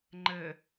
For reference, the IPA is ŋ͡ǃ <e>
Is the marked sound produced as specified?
no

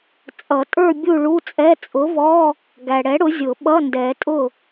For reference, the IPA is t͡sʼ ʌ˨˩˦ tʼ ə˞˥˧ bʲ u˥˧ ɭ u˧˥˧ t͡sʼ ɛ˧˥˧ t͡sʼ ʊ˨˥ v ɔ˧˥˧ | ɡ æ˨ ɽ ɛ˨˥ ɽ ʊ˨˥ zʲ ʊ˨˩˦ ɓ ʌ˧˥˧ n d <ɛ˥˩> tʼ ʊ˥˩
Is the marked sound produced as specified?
no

